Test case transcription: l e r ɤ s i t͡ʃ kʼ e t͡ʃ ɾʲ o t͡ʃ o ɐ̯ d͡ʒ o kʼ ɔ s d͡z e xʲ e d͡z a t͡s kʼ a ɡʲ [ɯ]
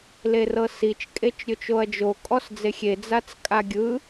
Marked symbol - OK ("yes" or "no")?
yes